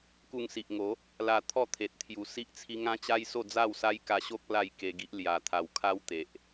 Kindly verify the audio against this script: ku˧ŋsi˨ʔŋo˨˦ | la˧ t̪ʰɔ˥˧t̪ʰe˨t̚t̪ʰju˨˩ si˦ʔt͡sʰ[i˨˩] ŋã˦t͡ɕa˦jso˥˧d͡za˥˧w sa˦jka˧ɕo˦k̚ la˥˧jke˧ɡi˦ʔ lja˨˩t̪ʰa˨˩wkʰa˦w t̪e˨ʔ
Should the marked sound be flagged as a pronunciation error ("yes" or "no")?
yes